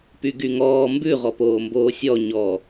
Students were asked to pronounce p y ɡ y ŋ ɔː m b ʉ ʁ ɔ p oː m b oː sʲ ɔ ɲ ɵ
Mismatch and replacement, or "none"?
ɵ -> ɔ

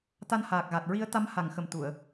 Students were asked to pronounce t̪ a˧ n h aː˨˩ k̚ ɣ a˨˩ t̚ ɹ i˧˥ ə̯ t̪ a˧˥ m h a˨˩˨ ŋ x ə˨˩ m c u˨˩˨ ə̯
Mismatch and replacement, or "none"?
c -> t̪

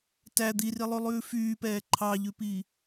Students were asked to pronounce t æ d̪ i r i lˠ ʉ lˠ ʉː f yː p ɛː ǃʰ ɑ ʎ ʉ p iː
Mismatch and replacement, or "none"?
none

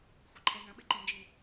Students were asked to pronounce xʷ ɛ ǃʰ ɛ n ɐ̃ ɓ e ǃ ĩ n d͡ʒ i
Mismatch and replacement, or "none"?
none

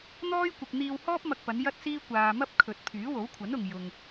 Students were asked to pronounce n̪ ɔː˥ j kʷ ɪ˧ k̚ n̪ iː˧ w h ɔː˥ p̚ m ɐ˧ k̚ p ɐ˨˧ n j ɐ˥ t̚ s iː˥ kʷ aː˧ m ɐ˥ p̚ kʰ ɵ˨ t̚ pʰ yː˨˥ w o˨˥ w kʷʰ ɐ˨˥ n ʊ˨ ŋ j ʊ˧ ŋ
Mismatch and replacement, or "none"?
none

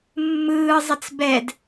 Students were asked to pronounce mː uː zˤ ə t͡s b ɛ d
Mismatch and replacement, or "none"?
uː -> ɯː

